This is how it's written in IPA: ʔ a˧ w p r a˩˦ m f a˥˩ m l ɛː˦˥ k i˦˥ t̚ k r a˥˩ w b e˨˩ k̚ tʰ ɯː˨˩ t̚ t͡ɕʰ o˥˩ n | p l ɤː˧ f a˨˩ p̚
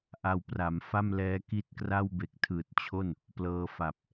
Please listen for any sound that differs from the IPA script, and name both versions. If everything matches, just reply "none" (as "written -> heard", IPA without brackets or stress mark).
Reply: none